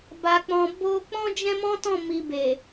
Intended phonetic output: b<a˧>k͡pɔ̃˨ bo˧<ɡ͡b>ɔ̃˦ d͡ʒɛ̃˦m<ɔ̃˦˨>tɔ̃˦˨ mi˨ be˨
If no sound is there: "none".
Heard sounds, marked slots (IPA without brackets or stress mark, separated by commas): a˨, k͡p, ɔ̃˦